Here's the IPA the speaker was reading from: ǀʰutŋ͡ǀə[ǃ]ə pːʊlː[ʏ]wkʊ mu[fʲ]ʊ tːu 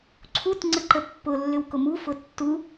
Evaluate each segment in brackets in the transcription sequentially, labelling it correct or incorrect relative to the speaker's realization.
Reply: correct, correct, incorrect: f

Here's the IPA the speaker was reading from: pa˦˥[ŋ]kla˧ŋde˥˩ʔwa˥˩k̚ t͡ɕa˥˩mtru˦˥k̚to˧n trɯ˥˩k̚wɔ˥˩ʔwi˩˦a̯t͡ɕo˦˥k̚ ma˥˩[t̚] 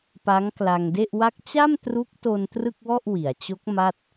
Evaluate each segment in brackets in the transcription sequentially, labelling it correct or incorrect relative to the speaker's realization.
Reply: correct, correct

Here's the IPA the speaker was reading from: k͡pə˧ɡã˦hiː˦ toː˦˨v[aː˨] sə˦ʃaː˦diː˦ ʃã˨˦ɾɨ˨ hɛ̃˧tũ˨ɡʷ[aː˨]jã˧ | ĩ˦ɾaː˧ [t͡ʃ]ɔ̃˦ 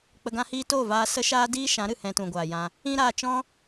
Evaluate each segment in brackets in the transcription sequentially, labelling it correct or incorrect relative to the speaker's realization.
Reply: incorrect: aː˧, correct, correct

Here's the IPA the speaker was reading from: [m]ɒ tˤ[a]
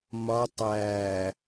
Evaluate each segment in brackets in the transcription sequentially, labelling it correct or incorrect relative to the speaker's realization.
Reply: correct, incorrect: æ

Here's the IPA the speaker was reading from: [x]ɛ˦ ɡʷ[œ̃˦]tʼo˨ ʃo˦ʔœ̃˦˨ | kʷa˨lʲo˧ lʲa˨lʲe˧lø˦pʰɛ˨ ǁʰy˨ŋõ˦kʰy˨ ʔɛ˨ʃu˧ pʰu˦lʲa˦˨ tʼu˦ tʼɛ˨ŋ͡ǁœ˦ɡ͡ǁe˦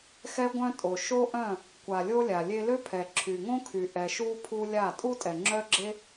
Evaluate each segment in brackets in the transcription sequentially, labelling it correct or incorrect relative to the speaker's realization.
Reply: correct, incorrect: œ̃˧

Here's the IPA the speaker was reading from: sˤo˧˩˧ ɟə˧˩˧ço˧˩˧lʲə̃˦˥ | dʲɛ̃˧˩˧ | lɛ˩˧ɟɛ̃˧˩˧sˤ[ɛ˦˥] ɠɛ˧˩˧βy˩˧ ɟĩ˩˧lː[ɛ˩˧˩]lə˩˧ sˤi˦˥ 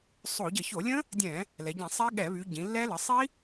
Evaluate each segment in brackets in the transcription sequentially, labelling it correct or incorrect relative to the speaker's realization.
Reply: correct, incorrect: ɛ˦˥

